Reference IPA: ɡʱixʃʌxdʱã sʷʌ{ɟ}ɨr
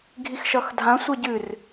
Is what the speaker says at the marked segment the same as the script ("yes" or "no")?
yes